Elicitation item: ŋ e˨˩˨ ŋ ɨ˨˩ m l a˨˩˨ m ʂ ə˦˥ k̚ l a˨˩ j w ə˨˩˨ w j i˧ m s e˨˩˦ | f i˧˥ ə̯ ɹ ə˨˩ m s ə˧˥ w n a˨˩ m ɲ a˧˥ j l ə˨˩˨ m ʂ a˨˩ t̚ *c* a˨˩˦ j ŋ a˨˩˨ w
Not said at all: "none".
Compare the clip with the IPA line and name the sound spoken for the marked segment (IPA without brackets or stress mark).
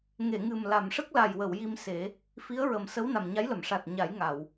ɲ